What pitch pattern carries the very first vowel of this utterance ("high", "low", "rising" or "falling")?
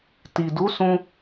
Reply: low